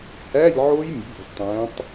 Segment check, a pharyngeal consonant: present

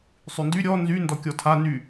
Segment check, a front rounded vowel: present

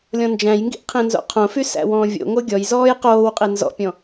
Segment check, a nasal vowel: present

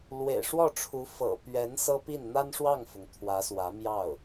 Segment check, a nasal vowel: absent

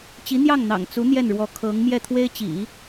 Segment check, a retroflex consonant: present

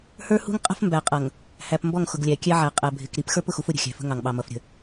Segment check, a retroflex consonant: absent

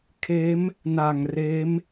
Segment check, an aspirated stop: present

